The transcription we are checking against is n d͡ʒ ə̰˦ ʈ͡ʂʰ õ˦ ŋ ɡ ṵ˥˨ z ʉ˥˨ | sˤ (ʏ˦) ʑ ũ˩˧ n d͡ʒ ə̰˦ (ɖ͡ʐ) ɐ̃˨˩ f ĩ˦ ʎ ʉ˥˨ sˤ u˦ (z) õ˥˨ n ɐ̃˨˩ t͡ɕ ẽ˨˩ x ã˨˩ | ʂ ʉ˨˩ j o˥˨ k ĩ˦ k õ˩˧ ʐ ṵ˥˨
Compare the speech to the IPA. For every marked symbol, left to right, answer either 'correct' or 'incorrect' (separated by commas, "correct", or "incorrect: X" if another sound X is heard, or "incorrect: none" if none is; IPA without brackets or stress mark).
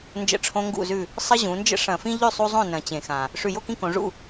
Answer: incorrect: ə˦, incorrect: ʂ, incorrect: zˤ